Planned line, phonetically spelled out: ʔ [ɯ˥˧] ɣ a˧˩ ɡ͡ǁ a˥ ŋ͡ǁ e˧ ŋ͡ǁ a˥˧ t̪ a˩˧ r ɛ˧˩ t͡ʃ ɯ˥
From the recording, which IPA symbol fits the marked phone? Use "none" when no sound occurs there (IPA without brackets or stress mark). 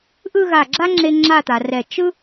ɯ˥˧